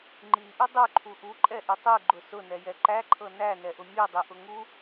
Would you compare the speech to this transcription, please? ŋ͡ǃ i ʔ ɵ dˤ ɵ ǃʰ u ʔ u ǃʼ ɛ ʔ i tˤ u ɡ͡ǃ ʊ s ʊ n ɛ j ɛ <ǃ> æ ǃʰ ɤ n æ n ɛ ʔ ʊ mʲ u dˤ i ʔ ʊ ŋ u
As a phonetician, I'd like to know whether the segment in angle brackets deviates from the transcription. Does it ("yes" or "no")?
no